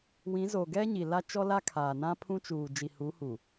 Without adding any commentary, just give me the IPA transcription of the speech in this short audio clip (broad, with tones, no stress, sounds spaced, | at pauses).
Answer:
w ĩ˨˦ z o˨ ɡ ɛ˦ ɲ i˨ l a˦ t͡ʃ ɔ˦ l a˦ kʰ aː˨ n ã˦ pʰ ũ˦ t͡ʃ uː˨ d͡ʒ i˨ h u˨˦ h u˨